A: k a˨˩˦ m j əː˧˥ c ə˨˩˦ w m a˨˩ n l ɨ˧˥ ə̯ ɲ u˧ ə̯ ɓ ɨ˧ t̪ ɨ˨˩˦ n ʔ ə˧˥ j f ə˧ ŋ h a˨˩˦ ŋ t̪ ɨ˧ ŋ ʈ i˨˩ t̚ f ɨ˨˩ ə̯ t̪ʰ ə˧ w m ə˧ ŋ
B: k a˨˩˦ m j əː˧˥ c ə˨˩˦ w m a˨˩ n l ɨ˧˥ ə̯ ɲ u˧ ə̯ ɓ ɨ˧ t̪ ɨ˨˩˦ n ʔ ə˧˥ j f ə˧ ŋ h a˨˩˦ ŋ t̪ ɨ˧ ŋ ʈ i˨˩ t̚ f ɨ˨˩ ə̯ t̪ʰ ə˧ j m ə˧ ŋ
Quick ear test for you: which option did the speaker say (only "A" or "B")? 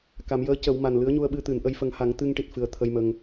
B